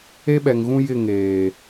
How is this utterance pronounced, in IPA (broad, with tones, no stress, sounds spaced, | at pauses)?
e˦ ɓ ɛ˨ ŋ ɣ ũ˦ j ɪ˦˨ ŋ eː˨